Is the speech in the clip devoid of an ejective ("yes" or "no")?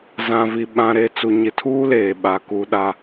yes